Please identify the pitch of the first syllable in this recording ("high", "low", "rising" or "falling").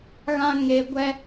high